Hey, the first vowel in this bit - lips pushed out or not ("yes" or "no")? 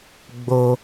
yes